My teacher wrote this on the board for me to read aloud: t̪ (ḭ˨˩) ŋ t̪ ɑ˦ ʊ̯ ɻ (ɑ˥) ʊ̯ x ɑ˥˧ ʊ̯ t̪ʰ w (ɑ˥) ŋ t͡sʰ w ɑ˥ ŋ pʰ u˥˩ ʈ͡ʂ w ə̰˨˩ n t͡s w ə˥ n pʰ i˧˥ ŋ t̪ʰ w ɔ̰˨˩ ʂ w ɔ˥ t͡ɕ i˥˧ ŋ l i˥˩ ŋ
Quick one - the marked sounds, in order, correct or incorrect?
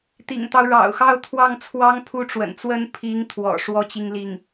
correct, incorrect: ɑ̰˨˩, incorrect: ɑ˥˩

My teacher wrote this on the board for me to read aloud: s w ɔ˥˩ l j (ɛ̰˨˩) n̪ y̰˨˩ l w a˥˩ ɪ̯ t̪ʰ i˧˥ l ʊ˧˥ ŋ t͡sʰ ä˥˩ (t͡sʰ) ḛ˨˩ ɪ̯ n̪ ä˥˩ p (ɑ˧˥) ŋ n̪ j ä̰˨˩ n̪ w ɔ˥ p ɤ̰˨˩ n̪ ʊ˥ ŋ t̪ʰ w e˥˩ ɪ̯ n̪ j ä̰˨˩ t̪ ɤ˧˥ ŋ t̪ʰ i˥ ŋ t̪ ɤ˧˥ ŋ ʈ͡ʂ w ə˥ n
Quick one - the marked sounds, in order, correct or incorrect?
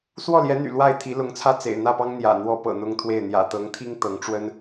incorrect: ɛ˧˥, incorrect: t͡s, incorrect: ɑ˥

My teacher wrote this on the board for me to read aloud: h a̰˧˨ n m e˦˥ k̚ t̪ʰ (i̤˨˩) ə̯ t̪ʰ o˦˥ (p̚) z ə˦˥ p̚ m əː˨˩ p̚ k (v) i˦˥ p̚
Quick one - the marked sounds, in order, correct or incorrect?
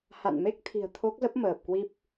correct, incorrect: k̚, incorrect: w

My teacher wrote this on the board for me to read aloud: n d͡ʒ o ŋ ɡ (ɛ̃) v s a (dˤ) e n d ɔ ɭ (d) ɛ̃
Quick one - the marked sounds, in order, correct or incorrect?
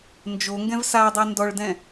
correct, correct, correct

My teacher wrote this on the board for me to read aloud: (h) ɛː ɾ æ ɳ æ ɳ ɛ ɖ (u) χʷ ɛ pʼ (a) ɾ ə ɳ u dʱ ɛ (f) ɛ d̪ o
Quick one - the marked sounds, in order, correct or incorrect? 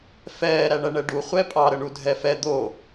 incorrect: f, correct, incorrect: ɑ, correct

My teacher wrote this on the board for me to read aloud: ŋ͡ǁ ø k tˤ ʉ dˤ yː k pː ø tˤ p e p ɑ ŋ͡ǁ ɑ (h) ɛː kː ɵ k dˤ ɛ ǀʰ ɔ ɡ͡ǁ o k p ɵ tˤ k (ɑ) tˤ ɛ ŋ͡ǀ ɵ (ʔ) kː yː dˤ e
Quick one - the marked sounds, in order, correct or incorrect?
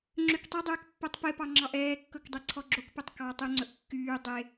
incorrect: ʔ, correct, correct

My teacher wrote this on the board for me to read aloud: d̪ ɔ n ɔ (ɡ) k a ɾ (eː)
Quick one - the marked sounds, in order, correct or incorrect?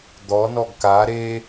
correct, incorrect: e

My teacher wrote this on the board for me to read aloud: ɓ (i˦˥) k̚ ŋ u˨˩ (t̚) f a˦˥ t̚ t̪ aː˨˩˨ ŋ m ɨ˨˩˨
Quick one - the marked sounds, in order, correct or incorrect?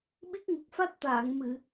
correct, incorrect: k̚

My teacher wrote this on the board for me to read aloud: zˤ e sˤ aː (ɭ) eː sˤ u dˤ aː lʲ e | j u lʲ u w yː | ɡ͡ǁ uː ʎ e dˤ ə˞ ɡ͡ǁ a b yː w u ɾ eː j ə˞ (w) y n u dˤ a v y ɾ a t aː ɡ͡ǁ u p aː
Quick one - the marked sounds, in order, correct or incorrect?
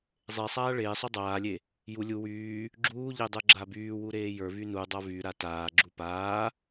correct, incorrect: v

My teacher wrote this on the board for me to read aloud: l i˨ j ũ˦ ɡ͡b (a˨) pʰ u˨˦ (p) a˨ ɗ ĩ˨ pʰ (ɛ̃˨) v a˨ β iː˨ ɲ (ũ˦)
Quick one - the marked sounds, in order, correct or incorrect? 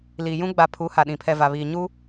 correct, incorrect: h, incorrect: ɛ˨, incorrect: u˦

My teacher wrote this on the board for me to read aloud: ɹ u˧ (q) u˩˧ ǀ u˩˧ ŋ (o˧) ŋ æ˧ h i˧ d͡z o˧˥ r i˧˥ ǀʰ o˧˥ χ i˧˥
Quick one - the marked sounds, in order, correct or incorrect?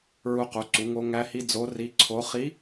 correct, correct

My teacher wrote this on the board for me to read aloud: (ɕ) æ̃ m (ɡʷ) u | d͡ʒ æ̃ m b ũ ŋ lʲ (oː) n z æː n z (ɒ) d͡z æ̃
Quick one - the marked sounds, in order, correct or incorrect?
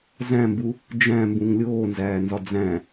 incorrect: z, incorrect: b, correct, correct

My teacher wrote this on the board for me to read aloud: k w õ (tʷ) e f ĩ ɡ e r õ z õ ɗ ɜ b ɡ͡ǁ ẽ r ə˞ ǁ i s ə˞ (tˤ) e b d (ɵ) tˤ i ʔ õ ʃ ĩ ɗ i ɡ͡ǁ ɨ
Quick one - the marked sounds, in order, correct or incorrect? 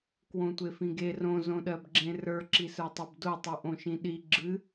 correct, correct, incorrect: o

